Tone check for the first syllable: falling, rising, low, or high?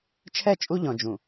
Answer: falling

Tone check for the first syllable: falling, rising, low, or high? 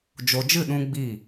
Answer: low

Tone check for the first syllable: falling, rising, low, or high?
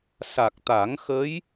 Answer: low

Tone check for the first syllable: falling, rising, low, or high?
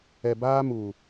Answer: low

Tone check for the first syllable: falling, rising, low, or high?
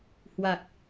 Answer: low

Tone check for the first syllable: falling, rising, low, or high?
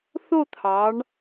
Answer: falling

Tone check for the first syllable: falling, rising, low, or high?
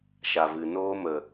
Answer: low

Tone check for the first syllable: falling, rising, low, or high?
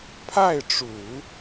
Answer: falling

